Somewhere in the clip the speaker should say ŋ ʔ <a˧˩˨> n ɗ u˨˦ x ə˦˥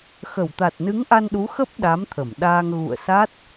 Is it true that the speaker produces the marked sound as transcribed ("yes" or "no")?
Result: no